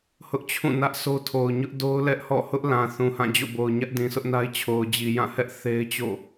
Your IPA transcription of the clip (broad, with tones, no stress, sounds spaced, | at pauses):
h ʊ˦ ʔ t͡ɕʰ ũ˦˨ n ä˦ ʔ s o˦ tʰ o˨ ʊ̯ ɲ ʊ˦ ʔ d o˦ ʊ̯ l ɛ˦ ʔ h ɔ̰˦˨ h ʊ˦ ʔ l ã˨ θ ũ˨ h ã˦˨ d͡ʑ o̰˦˨ b o˨ ʊ̯ ɲ ä˦ ʔ d ĩ˨ s ʊ˦ ʔ n a˦ ɪ̯ t͡ɕʰ o˨ ʊ̯ d͡ʑ i˨ j ã˦˨ h ɛ˦ ʔ θ e˦ ɪ̯ t͡ɕ o̰˦˨